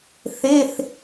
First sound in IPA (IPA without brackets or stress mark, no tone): θ